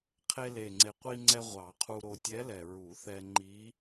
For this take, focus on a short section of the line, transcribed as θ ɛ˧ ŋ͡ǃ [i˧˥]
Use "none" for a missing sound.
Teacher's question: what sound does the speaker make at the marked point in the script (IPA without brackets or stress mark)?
i˧˥